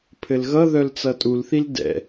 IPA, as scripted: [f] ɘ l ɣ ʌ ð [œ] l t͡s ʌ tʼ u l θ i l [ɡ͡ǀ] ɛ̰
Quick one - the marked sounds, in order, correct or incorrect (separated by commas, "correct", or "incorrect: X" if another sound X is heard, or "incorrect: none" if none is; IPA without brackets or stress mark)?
incorrect: pʰ, correct, incorrect: d